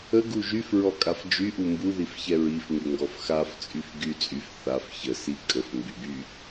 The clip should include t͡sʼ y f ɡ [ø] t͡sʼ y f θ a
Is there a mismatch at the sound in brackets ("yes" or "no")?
yes